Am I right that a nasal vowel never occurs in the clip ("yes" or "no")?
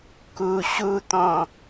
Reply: no